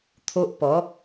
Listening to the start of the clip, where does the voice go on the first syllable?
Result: high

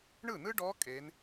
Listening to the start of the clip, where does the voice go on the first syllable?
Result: falling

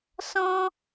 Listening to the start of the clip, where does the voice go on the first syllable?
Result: high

